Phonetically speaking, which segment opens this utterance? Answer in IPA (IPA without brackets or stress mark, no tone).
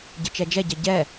ɟ